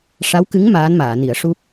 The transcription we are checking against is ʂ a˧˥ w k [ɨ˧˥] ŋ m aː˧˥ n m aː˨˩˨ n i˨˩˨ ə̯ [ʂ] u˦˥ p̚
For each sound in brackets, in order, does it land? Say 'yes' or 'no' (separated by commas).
yes, yes